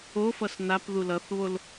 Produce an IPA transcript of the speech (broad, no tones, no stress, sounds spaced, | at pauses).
o f ʌ s n a p ð u l ʌ θ β o l